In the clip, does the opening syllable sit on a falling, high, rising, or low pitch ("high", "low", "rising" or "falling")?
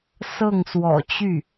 falling